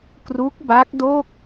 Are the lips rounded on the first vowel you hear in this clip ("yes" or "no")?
yes